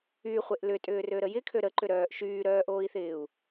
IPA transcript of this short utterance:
y χʷ e ʔ l ʏ tʼ ʏː r ø ɾ ə j ɪ kʰ ø ɾ ə ǃ ʏ ɾ œː ʔ ʃ yː ɾ œː ʔ oː i̯ θ ɪː u̯

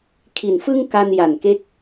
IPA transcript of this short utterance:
kʰ i˨˩ n f ɯ˥˩ ŋ k a˧ n j a˨˩ n k e˦˥ k̚

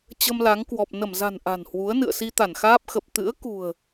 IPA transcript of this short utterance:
t͡ɕ ə˧ m l a˨˦ ŋ k w ɔ˨˩ p̚ n ə˧˩ m z a̤˨˩ n ʔ a̤˨˩ n h w u˨˦ ə̯ n ɨ̰˧˨ ə̯ s i˧ t̪ a˧˩ n x aː˦˥ p̚ x ə˨˩ p̚ t̪ ɨ̰˧˥ ə̯ k ṳ˨˩ ə̯

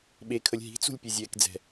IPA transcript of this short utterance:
ɓ e kʰ ə lʲ ɦ i̤ t͡s ṳ lʲ pʲ e zʲ ɛː k d͡z ɛ̤

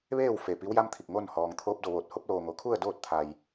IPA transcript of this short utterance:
ʋ eː˥˨ w f e˧˩ p i˧˥ w j a˧˥ m t̪ʰ i˧˩ k̚ ŋ o˥˨ n h ɔː˩ ŋ t̪ʰ oː˧ p̚ d o˧˩ ʋ oː˧˩ t̚ h o˧ p̚ l oː˩ ŋ o˩˧ kʰ u˥˨ ə̯ d oː˥˨ t̚ t̪ʰ a˩ j

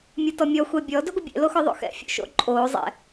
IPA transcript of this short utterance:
mʲ o t ɔ mʲ ɔ xʷ ɛ bʲ ɔ d ɵ ɡʷ ə bʲ ɛ̰ l o x ɔ ðˤ o̰ x ɛ̰ fʲ o̰ ʃ o̰ ǃʼ oː zˤ ɛ̰

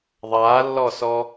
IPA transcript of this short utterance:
ðˤ aː lː ɔ s ɔ

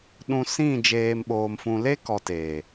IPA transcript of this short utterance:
ɗ ũ˧ s ĩ˦˨ d͡ʒ eː˧ m ɓ oː˧ m f ũ˧ l e˦ k ɔ˨ t eː˨

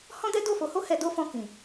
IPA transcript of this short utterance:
h ɔ̃˦ d ɛ˦ d o˦˨ f o˨˦ h o˦ h ɛ˧ d o˦ f ɔ̃˧ k ĩ˨

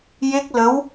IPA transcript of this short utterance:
j e˦˥ k̚ l ə˧˥ w

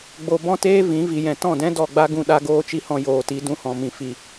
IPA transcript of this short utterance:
ɡ͡b o˧ b ɔ̃˦ t eː˦ v ĩ˨˦ v i˨ j ɛ̃˨ t ɔ̃˦˨ d ɛ̃˦ d ɔ˦˨ ɡ͡b a˦ ɡ ũ˧ ɗ a˧ ɡ oː˧ t͡ʃ i˧ h ɔ̃˨ j oː˨ t i˨˦ d ũ˧ h ɔ̃˨ m ĩ˨ f i˨

